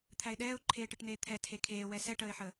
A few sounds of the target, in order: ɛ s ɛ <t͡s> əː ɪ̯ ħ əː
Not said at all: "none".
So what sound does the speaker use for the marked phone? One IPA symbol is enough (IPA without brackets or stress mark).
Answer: ʈ